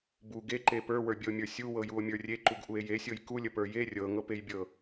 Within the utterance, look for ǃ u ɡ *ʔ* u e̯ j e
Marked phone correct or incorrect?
correct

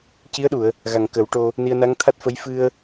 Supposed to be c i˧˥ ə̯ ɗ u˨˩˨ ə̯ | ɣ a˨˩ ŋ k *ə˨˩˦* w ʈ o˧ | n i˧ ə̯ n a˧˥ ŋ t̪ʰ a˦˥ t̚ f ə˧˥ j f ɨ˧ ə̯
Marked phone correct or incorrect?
correct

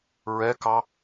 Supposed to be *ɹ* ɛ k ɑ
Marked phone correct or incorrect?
correct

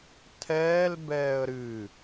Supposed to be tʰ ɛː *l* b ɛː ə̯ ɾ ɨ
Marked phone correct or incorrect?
correct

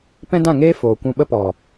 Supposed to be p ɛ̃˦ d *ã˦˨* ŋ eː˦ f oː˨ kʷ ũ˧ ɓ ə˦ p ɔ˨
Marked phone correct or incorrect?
correct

